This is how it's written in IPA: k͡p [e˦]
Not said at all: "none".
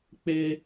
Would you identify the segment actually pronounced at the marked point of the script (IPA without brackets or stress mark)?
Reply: e˦